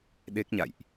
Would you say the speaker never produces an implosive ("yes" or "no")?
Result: no